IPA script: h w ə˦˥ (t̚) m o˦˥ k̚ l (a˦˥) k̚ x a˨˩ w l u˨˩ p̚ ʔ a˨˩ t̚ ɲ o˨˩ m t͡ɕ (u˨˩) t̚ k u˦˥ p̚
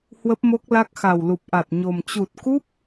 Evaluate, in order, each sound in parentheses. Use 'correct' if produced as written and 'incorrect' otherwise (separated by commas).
incorrect, correct, correct